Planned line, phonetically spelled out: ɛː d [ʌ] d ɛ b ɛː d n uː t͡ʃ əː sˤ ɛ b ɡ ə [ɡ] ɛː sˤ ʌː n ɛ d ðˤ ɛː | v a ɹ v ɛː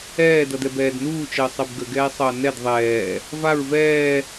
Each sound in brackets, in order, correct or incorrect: correct, correct

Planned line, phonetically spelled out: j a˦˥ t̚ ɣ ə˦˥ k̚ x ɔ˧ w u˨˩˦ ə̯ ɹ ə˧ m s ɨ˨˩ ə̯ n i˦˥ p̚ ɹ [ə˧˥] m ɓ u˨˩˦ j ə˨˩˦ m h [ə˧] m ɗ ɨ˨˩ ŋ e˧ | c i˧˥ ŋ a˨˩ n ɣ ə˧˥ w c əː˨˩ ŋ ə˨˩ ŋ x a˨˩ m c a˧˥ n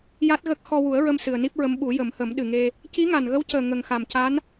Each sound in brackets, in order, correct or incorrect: correct, incorrect: ə˨˩˦

